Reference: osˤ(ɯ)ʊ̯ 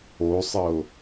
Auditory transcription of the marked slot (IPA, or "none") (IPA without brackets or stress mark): ə